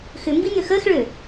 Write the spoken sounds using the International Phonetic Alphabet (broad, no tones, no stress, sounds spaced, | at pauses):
x ʏ m b i n̪ ø x əː x ɭ ø